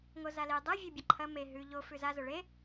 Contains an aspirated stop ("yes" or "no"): yes